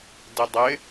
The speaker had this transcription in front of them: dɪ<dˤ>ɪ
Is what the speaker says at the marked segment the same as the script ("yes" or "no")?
yes